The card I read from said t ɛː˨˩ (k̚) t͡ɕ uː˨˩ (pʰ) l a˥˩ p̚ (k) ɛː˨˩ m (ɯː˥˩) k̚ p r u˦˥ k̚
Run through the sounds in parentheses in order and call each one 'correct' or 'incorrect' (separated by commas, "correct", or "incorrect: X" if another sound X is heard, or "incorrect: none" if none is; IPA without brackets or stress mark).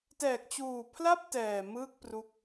correct, correct, incorrect: t, correct